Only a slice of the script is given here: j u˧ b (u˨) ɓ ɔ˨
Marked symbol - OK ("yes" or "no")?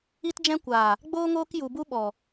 no